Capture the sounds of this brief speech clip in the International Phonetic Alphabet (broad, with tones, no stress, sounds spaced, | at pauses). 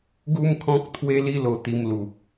ɡ u˦ m kʰ ɔ̃˦ k̚ t̪ʰ w e˦ l i˦ l o˧ t̪ i˧ m l u˨ p̚